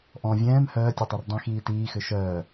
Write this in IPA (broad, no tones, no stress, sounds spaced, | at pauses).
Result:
ʔ ɔ̃ vʲ ɛ̃ː m h œː tʲ œ tˤ i r dˤ ĩ x iː t iː x ʏ ʃ œː